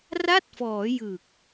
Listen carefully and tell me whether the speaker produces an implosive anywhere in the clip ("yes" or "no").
no